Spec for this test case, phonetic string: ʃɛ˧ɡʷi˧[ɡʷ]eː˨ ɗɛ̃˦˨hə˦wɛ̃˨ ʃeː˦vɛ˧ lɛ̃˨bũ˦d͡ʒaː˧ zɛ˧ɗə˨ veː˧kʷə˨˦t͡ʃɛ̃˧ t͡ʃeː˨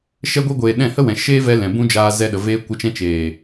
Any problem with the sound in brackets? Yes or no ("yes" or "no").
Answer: no